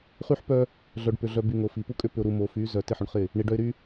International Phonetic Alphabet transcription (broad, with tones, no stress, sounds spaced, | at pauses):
χ y˦ ħ p œ˦ | ɮ œ˨ ɖ p ʏ˨ ɮ œ˨ b y˨ ŋ o˨ f i˨ p u˦ kʼ ʏ˦ p ʏ˨ ʊ̯ ɾ u˨ m o˨ f y˨˦ z œ˨ t ɪ˦ ħ ʏ˨ ɳ χ ɪ˦˨ | ɳ i˨ ɖ œ˦ ɪ̯ ɾ y˦